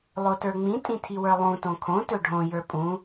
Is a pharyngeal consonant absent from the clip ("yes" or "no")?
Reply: yes